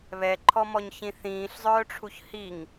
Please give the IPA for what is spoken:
βɛǃʰɔmɔɲçĩ θĩːɬzˤœːʈ͡ʂʰuç hiŋ

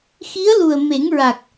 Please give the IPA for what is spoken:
xi˧˥ə̯lu˨˩ə̯me˨˩˦ŋɹa˨˩k̚

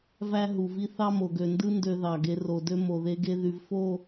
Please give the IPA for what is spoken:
væ˦ ɦu˨vi˦ θɑ˦mo˨ɡø˨ndɯ˦ ndø˦ðɑ˨ɡe˦ ro˨dø˦ mo˨ðe˦ɡe˦ ðy˨vfo˦˨

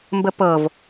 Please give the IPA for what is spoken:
mbəpɤv

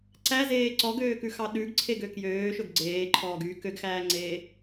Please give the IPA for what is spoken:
ǀæzeː ǀɔɡøːkʉxɑ ɗʉɡǀʰeɡø kjøːʃɵɡ ɡ͡ǀeːǃʰɔːɡyː køɡxæːŋ͡ǀeː

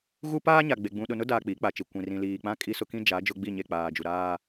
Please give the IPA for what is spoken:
ɣu˦paː˦ɲa˨ɡ͡be˨ ɡ͡bũ˨ɗʊ˨nʊ˦daː˨ k͡piː˨˦k͡pa˨t͡ʃi˨ kʷĩ˨rĩ˨liː˨k͡pã˦ kʼi˦sʊ˦ kĩ˦d͡ʒa˨˦ d͡ʒʊ˦ɡ͡bi˦˨ɲe˦˨ k͡paː˨d͡ʒu˨ɾaː˦

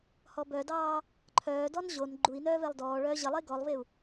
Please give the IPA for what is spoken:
hɔbœdɑː | ǃʰœːdɔn ʑon ɡ͡ǃui̯nœː vɛlˠdɔːɭœː ʑəlˠe ɡɔlˠveu̯

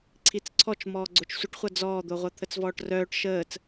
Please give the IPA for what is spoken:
ǀʰit͡sǀʰɔt͡ʃ mɔːɡ͡ǀot͡ʃsʷəʈχʷʌ d͡zɔːd̪oʁʷʌ t̪ʰət͡svɔːʈrœːʈ ʃəːt͡s

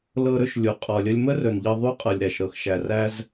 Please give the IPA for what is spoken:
lɤ˧ɾɵ˧ʃlʲu˩ qʼɔ˩lʲə˧lʲ mə˥rɵ˩nʎɤ˧ ðˤu˧qʼɤ˩lʲ ɾæ˩ʃ ɾɤ˩xʃæ˩ ræ˧z

